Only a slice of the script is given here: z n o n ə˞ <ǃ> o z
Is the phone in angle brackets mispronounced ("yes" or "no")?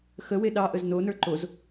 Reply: no